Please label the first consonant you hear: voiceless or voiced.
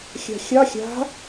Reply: voiceless